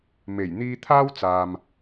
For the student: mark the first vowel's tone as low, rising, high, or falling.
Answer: low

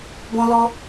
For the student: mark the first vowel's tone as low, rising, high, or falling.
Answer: high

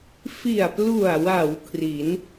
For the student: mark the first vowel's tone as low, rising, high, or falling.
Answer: low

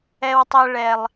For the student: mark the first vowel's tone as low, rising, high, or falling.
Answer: low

